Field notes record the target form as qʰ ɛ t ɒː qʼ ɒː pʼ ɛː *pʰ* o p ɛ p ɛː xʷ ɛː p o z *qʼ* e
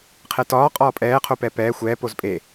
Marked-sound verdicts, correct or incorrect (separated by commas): incorrect, incorrect